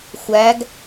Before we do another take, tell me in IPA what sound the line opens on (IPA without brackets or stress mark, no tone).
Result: xʷ